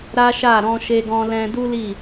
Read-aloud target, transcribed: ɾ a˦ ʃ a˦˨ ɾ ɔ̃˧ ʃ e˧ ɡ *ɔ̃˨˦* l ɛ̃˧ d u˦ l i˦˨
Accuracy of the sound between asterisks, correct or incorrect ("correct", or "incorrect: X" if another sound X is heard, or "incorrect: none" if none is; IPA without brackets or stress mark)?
incorrect: ɔ̃˧